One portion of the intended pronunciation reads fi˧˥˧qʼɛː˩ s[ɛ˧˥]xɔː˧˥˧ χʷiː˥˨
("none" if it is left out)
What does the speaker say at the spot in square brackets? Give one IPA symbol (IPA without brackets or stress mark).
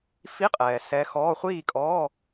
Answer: ɛ˧˥